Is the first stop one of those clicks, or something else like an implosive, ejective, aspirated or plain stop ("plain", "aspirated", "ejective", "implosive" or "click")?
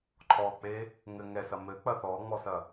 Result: click